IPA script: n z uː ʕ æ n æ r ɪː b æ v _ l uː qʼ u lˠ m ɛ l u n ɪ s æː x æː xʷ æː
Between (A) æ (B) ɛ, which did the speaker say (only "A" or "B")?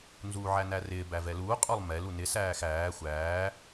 B